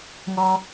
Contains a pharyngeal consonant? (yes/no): no